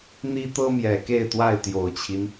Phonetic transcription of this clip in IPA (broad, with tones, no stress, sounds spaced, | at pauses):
n̪ i˦ t̪ ɤ˦ m j ɛ˨˩ k e˥˨ ɪ̯ t̪ w a˥˨ ɪ̯ t̪ j o˨˩ ʊ̯ t͡ɕʰ i˦ n